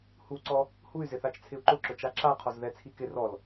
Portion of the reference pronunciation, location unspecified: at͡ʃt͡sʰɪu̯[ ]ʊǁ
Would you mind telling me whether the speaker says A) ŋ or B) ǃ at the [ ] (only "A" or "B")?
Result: B